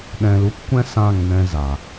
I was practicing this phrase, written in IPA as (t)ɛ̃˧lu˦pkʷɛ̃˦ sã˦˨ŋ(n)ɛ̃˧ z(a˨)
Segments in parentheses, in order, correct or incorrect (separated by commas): incorrect, correct, correct